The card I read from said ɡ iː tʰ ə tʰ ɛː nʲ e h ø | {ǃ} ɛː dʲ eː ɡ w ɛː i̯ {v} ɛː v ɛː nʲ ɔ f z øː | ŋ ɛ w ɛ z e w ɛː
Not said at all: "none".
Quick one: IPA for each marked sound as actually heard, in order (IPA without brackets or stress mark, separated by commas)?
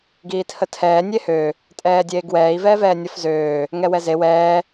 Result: tʼ, v